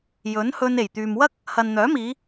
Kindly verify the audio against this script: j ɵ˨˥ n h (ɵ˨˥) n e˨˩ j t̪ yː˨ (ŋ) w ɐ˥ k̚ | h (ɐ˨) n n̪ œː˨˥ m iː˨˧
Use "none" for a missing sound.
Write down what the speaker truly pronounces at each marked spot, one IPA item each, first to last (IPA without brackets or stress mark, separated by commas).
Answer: ɵ˧, m, ɐ˨